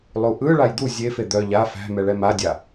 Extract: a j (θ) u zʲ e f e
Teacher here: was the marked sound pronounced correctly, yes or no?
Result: no